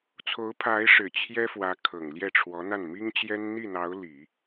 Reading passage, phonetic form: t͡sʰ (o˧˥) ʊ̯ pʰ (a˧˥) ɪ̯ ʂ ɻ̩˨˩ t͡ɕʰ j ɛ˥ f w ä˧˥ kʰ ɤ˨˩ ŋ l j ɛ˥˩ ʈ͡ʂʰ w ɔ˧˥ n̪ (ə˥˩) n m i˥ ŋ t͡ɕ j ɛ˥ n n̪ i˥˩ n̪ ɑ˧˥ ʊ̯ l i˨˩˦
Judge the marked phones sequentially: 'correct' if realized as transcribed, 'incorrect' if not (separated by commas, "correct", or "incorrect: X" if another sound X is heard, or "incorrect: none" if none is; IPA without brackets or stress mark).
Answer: correct, correct, incorrect: a˥˩